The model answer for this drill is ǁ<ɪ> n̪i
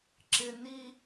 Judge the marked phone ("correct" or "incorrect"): correct